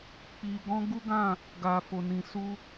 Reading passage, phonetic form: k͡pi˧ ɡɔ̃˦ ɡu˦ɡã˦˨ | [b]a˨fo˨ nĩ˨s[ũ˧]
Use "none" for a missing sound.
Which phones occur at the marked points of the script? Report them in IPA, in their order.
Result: ɡ, u˧

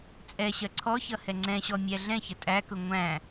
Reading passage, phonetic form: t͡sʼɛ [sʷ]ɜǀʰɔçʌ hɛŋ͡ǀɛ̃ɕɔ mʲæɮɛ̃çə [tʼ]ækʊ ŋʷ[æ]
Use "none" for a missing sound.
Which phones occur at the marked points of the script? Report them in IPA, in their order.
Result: ɕ, tʼ, æ̃

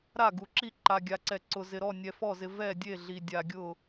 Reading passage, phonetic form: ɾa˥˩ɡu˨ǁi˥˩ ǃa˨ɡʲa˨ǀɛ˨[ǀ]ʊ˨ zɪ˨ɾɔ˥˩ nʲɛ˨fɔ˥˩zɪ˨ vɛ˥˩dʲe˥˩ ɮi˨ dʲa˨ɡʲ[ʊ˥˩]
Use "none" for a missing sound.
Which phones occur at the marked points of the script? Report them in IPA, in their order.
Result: ǀ, ʊ˥˩

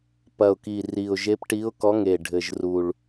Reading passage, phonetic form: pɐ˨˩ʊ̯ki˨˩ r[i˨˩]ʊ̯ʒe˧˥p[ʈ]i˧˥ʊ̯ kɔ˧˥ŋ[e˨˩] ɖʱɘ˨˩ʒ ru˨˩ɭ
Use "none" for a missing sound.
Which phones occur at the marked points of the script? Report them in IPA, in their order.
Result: i˨˩, ʈ, e˨˩

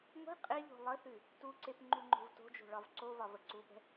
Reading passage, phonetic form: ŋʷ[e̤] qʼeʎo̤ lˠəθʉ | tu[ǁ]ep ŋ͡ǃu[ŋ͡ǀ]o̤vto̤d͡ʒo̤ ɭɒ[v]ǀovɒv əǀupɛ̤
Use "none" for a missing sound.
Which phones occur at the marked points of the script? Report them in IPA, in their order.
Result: e̤, ǀ, ŋ͡ǃ, v

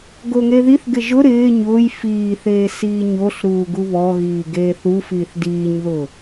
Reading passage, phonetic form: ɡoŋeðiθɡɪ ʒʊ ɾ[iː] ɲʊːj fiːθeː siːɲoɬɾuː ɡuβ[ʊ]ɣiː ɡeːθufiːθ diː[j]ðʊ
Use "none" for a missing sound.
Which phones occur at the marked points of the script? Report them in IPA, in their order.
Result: ɪː, ɔ, ɲ

